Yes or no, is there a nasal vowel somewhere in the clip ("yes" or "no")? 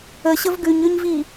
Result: no